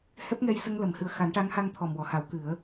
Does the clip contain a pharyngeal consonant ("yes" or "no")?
no